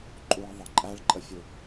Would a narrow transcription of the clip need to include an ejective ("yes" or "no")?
yes